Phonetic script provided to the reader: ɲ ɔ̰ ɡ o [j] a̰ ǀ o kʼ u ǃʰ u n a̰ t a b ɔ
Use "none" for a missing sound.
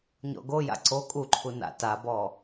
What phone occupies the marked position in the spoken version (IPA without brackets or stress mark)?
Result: j